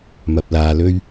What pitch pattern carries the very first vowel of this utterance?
low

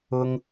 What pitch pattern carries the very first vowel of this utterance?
low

